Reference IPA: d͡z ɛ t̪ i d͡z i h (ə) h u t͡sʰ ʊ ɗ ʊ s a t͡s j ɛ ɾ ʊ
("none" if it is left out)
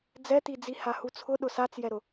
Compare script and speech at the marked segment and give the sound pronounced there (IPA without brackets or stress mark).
a